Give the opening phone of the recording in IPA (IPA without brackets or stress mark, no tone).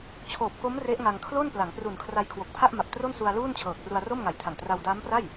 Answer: t͡ɕʰ